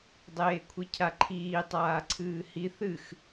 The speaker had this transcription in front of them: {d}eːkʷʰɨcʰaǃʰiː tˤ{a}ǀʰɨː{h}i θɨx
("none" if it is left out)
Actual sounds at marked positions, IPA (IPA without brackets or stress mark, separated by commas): dˤ, aː, h